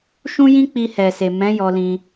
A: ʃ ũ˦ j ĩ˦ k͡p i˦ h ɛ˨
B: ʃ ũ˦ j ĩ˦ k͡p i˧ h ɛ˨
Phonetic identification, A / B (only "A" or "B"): B